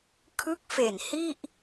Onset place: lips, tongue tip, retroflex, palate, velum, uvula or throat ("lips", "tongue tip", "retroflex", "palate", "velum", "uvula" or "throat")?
velum